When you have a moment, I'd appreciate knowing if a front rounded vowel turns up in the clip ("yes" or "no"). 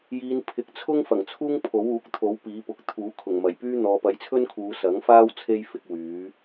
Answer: yes